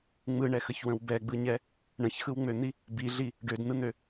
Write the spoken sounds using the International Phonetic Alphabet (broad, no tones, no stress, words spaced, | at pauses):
ŋ͡mɯɳɛxəçwə̃w bɛɡ͡bɯɲɛ | ɳə̃çxɯwŋ͡møn̪i | biɮi | ɖødn̪ɯn̪ø